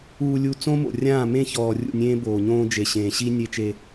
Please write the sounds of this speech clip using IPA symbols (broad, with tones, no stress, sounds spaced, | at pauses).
uː˨ lʲ u˨ t͡s õ˦ m o̰˨ rʲ ãː˦˨ m ẽ˦˨ ç ɔː˨ rʲ ṵ˦˨ nʲ ẽː˦ b oː˨ ɲ õː˦ d͡ʒ e˨ ɕ ẽː˨ ɕ i˦ nʲ e˦ t͡ʃ e˦